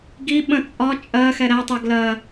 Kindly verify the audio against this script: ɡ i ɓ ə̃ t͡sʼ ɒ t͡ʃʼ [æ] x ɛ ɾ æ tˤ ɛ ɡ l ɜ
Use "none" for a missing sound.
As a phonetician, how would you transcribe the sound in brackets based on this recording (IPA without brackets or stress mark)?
ɜ